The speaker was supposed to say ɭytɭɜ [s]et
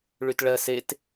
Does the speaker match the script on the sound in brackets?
yes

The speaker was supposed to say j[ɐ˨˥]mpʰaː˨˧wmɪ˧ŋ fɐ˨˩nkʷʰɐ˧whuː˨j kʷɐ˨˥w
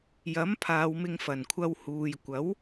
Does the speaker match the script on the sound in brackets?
yes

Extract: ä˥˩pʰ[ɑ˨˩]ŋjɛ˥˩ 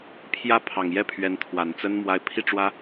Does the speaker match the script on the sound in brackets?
yes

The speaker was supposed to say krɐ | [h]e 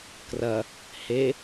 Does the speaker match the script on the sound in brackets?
yes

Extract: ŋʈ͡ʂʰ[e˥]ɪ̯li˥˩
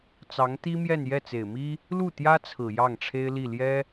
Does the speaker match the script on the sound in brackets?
yes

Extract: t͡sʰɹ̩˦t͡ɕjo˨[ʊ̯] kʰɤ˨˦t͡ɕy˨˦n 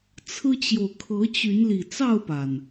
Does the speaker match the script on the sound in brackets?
yes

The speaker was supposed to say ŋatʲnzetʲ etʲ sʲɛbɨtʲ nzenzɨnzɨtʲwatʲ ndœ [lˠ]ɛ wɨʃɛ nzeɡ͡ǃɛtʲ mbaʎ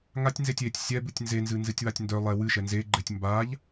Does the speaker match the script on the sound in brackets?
yes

